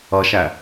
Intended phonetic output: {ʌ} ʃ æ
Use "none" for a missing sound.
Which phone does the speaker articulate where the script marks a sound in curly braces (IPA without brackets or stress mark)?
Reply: ʌ